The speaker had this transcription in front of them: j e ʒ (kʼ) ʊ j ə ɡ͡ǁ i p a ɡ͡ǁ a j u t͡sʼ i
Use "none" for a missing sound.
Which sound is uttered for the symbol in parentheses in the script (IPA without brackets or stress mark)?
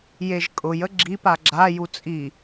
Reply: kʼ